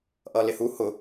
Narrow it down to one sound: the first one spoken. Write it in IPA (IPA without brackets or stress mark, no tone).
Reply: ʔ